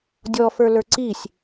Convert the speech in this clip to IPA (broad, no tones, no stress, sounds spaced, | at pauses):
dʲ ɔ f ə˞ l ə˞ ǀ i sʲ